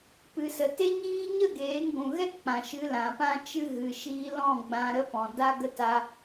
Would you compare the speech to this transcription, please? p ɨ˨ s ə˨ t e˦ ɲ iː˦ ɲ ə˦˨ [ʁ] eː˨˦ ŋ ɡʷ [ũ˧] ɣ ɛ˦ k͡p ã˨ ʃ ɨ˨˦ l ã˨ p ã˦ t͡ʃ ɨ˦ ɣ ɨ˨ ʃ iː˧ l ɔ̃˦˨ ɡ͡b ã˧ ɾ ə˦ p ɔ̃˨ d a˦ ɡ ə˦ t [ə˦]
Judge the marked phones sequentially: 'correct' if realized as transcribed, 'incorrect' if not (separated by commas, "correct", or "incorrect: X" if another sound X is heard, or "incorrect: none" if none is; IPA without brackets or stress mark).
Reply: incorrect: ɡ, incorrect: ũ˨, incorrect: a˦